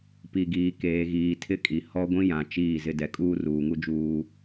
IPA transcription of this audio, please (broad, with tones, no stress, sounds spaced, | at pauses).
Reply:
p i˨ ɡ iː˨ k eː˨ ɣ iː˨ tʰ ɪ˦ kʼ i˨ h ɔ˦ ɡʷ ĩ˦ j ã˨ t͡ʃ iː˦˨ z ɪ˦ d ɛ˨ kʼ uː˦ r uː˨ ŋ u˦ d͡ʒ uː˦